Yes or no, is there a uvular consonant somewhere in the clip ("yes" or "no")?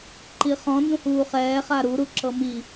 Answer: yes